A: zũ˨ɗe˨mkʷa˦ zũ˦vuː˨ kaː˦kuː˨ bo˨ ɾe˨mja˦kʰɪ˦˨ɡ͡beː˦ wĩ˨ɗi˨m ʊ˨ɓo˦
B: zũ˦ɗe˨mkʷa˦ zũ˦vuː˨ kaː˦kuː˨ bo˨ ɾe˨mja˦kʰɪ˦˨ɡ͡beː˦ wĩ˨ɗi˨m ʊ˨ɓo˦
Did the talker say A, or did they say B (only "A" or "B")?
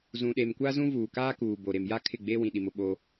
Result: A